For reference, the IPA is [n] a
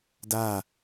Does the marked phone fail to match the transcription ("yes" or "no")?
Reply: yes